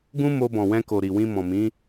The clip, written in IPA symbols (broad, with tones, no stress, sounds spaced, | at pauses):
ɡ ũ˦ m o˧ b ɔ̃˨ w ɛ̃˧ k o˨ ɾ i˨ w ĩ˧ m ɔ̃˨ m ĩ˨˦